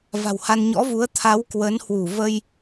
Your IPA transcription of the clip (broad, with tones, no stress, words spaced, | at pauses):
va̤˨˩wha˧n ɲɔ̰˧˥vu˨˦ə̯ t̪ʰa˨˦w kwə˨˦nhwu˧˩ və˧j